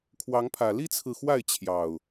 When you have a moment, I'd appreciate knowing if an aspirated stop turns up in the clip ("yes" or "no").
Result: yes